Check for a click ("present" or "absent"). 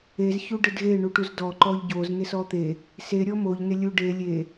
present